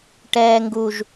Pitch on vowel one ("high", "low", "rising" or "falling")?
high